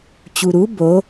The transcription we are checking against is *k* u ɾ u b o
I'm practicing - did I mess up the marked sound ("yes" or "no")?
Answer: yes